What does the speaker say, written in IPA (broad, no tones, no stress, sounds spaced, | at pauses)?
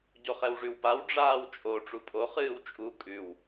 ɟ o χ ɛ w ʐ ʉ w p a w ɖ͡ʐ aː w t͡ʃʼ o ʈ͡ʂ u pʼ o χ ɨː w t͡ʃʼ u kʼ ʉ w